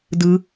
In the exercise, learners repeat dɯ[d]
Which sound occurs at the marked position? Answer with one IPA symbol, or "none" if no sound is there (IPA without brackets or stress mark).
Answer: none